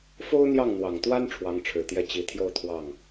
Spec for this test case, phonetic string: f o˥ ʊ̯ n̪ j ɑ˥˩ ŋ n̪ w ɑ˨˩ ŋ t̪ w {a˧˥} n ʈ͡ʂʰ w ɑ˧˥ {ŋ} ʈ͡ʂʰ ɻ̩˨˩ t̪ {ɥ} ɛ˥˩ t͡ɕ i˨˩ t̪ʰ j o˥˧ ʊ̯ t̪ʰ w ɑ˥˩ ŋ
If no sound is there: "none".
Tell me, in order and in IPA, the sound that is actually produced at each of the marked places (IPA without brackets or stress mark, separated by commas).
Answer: a˥, ŋ, j